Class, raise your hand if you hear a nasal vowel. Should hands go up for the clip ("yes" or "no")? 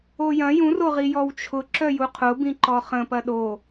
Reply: yes